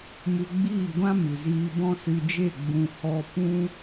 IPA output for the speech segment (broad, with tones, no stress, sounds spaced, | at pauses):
m u˧ ɡ͡b iː˦˨ ɡʷ ã˦ m ɨ˨ z iː˧ b ɔ̃˦ s ɨ˧ d͡ʒ e˦˨ ɡ͡b ũ˨ h ɔ˧ p ũ˦